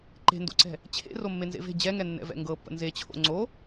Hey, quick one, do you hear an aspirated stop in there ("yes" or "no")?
yes